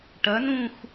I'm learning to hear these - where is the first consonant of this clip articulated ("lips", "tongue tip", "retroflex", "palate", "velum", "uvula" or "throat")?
retroflex